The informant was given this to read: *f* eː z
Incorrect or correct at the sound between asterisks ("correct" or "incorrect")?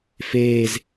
correct